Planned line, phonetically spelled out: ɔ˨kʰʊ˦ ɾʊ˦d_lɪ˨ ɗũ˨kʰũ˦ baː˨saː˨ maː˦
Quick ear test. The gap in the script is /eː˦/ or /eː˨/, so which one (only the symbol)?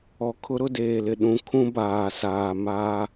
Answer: eː˨